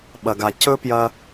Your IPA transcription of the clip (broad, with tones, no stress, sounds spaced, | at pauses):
ɓ ɐ˨ ɡ a˨ c ɵ˦ p j ɐ˧